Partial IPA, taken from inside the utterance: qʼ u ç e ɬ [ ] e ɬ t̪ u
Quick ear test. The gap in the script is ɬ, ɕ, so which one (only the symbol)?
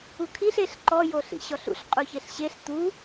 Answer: ɕ